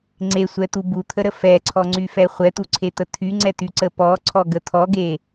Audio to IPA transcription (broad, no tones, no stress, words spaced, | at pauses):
ŋ͡ǀesʷɛt̪u but̪ʰəɾə fɛǀʰɔŋ͡ǀyfɛ χʷɛt̪uǀʰet̪ə t̪ʰyŋ͡ǀɛt̪yǀə pɔǀʰɔɡə t̪ʰɔɡe